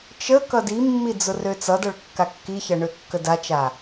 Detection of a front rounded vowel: present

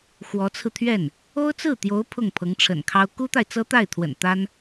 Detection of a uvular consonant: absent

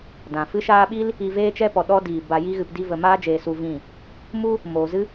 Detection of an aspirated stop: absent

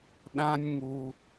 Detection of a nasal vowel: present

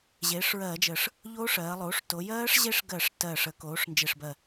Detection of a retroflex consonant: present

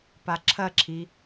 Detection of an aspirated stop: present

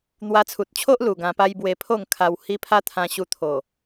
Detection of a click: absent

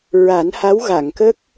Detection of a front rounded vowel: absent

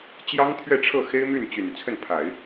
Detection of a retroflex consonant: present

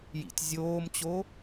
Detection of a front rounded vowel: absent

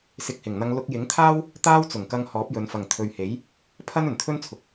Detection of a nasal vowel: absent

